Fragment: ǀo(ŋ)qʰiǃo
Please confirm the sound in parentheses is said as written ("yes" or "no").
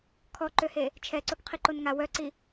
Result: no